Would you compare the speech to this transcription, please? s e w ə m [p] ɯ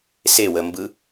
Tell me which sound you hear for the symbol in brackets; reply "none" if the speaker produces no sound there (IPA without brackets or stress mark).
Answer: b